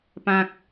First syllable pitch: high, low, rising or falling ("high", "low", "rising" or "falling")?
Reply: high